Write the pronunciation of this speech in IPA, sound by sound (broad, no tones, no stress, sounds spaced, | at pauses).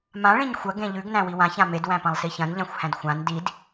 m ã ɭ ĩ ɲ xʷ ɐ ɡ ẽ ʎ ʉ ɡ n æ̃ w i w ã ç ã m e d w æ̃ p ɐ̃ lˠ s i ç ɐ̃ n ʎ ã xʷ h æ̃ d xʷ ã n d i d